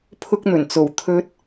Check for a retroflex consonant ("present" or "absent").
absent